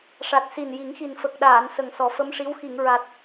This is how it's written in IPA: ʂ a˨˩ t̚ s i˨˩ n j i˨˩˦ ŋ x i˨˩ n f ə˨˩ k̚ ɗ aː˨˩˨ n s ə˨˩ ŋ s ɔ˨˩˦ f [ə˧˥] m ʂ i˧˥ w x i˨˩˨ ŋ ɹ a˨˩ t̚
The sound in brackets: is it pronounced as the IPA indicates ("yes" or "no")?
yes